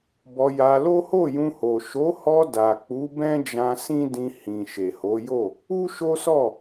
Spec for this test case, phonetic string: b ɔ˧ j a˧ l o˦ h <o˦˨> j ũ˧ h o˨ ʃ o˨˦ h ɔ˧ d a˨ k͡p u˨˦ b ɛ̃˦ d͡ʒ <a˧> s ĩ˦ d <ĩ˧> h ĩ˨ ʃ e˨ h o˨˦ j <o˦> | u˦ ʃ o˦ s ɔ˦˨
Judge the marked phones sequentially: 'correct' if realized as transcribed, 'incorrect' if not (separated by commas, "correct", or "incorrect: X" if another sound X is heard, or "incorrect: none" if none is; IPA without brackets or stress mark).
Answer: correct, incorrect: ã˧, correct, incorrect: o˦˨